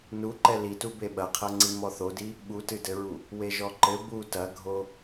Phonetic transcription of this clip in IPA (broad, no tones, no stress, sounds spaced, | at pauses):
n u ǃ ɛ l i t u b e ɓ ɐ qʰ ɐ ŋ͡ǀ i m ɔ θ o d i | ɓ u t ɨ d ɘ ɹ u | w e ʒ ɔ ǃ ɘ b u t ɐ ɡʱ o